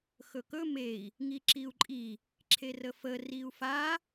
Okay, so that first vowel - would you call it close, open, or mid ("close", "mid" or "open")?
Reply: mid